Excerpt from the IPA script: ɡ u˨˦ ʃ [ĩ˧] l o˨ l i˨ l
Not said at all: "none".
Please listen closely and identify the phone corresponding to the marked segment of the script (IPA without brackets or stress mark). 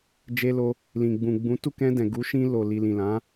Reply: ĩ˧